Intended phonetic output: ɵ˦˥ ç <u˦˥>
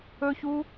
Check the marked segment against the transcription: correct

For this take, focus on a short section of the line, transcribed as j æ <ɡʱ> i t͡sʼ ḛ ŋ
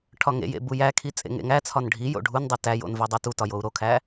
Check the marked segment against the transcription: incorrect: kʰ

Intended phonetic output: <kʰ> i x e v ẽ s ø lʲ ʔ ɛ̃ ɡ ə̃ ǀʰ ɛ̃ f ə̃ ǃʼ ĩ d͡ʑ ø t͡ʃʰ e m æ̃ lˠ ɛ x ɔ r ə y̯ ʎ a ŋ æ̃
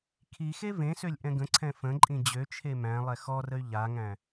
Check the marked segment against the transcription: correct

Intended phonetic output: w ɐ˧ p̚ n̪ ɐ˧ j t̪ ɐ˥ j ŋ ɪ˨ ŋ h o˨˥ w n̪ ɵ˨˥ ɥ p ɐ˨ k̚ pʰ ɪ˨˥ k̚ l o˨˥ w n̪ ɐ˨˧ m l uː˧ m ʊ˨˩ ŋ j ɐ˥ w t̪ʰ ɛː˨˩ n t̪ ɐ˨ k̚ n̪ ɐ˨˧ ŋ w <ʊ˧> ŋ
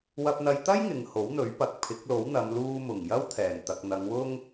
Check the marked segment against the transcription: incorrect: ʊ˥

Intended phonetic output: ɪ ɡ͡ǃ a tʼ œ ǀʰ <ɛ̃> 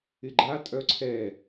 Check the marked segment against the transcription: incorrect: ɛ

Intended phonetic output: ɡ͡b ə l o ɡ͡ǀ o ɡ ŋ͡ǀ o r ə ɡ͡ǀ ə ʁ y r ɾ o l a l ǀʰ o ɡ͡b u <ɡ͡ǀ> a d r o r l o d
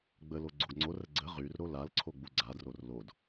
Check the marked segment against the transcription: correct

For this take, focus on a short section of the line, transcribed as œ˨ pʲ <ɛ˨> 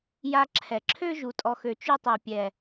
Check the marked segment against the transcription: correct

